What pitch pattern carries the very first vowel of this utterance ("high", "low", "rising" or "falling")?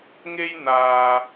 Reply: high